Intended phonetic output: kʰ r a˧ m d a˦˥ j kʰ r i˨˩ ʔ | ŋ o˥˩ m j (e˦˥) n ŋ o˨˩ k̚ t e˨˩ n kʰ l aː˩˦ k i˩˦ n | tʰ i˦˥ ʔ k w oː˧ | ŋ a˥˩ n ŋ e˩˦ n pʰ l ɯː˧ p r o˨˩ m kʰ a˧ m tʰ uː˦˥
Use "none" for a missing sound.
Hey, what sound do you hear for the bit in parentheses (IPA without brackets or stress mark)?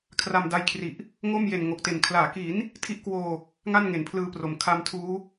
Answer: e˨˩